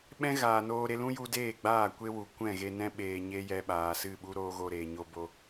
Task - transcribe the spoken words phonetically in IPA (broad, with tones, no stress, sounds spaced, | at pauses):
ɓ ɛ̃˦ ɣ aː˨ n oː˧ ɾ e˧ l ũ˦ j u˧ d eː˦˨ ɡ͡b aː˦˨ kʷ e˦ w u˨ kʷ ɛ̃˦˨ ɣ e˧ n ɛ̃˦ ɓ eː˨ ɲ e˧ j ɛ˧ ɓ aː˨ s ɨ˦˨ ɓ u˦ ɾ oː˧ ɣ o˧ ɾ eː˨ ɲ o˧ b o˧